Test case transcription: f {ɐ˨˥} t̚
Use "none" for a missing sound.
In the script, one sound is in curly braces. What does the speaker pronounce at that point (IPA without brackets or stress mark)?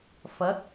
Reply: ɐ˨˥